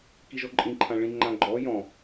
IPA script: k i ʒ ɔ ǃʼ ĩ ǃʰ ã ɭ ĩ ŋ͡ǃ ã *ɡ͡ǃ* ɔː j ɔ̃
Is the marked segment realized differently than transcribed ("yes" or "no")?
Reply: no